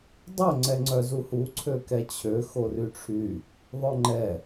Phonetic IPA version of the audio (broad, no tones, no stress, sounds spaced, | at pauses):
dˤ œ ŋ͡ǀ ɛ ŋ͡ǀ œ z u h u ǀʰ ø k ɛ t͡ɕʰ ø x o r y ʈ͡ʂʰ y | ðˤ œ ŋ͡ǃ ɛ